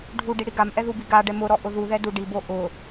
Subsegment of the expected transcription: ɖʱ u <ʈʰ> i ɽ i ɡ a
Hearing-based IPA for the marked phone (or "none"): ɖ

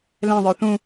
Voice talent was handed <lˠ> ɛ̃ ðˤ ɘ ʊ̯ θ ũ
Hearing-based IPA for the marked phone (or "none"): l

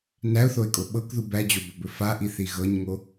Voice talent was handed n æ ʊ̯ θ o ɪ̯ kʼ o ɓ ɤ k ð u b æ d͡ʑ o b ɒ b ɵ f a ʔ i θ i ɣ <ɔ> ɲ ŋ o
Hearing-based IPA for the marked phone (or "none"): ɤ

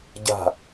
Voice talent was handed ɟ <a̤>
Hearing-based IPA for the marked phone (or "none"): a̤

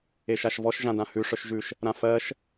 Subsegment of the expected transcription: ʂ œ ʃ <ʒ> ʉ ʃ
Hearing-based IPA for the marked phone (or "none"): ʒ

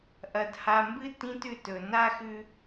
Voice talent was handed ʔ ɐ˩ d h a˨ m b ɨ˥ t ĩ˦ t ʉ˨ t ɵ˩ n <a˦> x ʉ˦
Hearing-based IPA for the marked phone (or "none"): a˥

